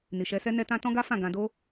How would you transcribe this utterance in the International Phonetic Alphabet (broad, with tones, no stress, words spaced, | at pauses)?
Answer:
ni˨ʃɛ˧sɛ˦ nɛ˦tã˦ tɔ̃˦ɡa˦fã˦˨ ɡã˧do˦